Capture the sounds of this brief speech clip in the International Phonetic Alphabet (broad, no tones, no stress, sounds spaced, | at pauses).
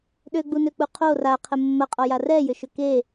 ɗ ø ɡ͡b u n ø k͡p u qʰ o r a qʰ ə mː ɐ qʼ ɔ j a r ɛ j ʏ ʃ ʏ k e